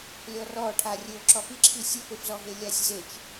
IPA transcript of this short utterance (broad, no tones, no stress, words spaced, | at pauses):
lʲɔrɔʈʰa rʲɘo̯ ǁɔpiǁʰi sʲɘpefzɔɦe lʲasʲzet͡ʃ